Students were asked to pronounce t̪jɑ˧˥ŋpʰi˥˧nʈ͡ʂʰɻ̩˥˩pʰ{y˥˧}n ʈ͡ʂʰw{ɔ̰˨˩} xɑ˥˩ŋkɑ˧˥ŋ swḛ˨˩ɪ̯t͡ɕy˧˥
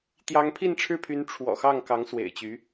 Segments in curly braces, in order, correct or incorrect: incorrect, correct

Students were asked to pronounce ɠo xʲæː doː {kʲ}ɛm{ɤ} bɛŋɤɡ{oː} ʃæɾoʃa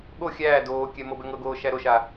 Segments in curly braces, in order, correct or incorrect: correct, correct, correct

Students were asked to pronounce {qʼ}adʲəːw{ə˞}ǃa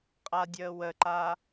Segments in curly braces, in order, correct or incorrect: correct, incorrect

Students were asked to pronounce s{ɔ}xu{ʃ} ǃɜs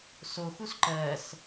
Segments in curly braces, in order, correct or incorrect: incorrect, incorrect

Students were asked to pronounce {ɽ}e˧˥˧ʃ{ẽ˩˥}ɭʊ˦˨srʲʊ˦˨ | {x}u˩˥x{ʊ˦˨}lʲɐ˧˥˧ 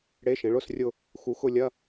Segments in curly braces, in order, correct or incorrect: correct, correct, correct, correct

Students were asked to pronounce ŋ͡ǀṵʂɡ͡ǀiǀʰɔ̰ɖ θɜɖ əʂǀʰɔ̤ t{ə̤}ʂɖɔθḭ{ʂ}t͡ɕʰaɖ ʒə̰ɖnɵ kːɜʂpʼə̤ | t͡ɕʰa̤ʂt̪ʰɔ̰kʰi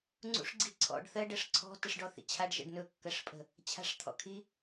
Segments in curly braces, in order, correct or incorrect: incorrect, incorrect

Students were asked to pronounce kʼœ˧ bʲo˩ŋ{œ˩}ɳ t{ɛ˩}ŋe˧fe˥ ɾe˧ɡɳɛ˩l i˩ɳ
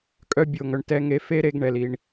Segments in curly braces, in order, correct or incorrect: correct, incorrect

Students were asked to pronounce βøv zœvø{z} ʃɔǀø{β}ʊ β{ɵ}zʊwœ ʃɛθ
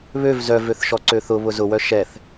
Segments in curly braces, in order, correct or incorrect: incorrect, incorrect, incorrect

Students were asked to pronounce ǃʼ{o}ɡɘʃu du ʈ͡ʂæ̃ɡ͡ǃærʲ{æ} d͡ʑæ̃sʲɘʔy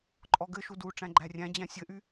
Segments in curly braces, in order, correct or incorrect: incorrect, incorrect

